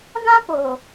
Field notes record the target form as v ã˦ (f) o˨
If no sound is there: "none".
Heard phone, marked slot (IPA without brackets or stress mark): p